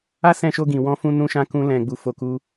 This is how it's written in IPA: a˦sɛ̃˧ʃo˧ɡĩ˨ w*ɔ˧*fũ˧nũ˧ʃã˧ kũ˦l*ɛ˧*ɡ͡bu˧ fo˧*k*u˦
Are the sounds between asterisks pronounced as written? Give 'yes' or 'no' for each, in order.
no, no, yes

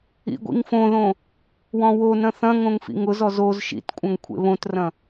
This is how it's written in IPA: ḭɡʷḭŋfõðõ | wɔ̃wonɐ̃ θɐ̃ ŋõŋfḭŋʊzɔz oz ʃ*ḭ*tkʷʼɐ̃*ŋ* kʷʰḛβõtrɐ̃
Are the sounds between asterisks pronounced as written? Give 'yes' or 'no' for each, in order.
yes, yes

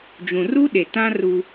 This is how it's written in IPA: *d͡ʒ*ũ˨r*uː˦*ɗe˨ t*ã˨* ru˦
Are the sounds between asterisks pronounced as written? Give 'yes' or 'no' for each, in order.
yes, no, no

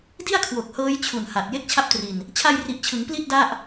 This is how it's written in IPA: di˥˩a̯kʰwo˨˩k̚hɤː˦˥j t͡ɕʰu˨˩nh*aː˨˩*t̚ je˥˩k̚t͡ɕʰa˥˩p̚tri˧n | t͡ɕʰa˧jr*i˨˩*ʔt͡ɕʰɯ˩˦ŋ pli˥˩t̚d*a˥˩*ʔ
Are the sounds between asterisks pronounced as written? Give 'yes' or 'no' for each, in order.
no, yes, yes

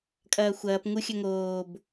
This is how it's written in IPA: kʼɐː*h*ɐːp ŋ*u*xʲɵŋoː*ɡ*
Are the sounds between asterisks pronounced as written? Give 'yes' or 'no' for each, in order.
no, yes, no

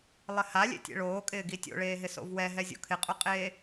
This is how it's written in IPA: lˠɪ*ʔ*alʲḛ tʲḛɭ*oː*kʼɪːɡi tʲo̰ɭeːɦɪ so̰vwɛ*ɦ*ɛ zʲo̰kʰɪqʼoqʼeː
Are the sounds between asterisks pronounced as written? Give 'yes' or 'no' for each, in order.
no, yes, yes

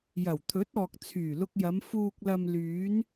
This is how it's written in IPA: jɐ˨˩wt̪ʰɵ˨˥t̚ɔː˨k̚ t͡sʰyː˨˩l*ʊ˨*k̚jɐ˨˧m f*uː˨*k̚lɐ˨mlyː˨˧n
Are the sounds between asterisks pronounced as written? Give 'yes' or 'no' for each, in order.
no, yes

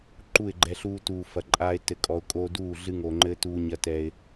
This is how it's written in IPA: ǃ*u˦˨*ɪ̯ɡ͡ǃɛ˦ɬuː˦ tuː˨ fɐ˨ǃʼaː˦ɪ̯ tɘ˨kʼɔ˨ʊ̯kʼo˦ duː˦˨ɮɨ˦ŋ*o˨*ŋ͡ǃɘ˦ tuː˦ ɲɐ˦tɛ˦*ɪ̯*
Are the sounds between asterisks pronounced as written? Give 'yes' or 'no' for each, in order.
yes, yes, yes

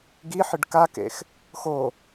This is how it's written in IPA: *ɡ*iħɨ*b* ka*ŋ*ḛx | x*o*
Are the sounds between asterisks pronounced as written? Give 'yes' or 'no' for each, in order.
yes, no, no, yes

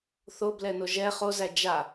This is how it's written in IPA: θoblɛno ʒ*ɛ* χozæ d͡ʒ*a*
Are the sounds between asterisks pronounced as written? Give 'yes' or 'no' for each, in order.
yes, yes

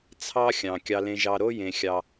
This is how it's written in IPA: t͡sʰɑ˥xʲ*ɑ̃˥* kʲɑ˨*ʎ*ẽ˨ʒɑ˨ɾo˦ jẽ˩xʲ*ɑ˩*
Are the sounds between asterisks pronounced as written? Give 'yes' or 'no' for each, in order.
no, no, yes

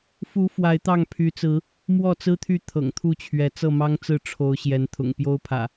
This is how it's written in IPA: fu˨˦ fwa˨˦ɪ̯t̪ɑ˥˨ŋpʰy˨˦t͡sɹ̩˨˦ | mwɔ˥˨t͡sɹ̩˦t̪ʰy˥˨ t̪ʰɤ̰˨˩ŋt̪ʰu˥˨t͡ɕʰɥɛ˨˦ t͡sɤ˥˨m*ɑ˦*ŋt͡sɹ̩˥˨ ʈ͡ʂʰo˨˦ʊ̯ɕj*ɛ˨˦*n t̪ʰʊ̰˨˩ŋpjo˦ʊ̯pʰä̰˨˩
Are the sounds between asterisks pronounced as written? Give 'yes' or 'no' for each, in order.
yes, yes

